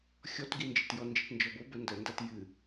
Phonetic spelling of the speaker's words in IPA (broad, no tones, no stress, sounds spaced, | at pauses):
xʲ ɔ t ɡ i n d͡ʒ ɨ t j ɔ n d͡ʒ i t n d͡ʒ ɔ b o b ə n d ə n d a t j ɨ